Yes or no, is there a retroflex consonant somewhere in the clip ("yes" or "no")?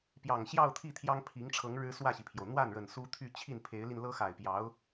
yes